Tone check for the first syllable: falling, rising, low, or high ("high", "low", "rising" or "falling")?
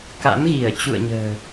rising